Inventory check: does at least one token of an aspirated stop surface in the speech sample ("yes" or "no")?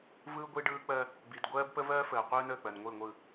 no